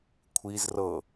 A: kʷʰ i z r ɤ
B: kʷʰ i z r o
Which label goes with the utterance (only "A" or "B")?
A